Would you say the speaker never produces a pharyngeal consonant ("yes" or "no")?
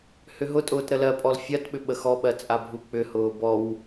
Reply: yes